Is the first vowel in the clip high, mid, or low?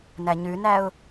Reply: low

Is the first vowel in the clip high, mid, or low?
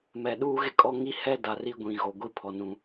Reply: mid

